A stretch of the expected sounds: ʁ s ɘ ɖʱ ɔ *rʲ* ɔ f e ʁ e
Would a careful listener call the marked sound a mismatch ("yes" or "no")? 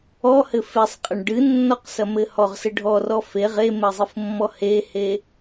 yes